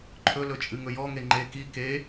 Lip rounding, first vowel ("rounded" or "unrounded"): rounded